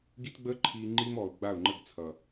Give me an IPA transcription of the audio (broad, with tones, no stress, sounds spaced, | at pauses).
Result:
ɡ i˦ t ɡ͡b əː˦ ǃʰ iː˧ ŋ͡ǃ iː˦ m ɔː˨ ʊ̯ ɡ͡b a˦˨ ʊ̯ ŋ͡ǃ ə˦˨ ɡ t͡sʰ ʌ˨